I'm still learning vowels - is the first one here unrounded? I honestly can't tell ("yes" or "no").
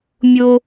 no